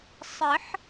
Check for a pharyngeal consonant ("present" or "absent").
present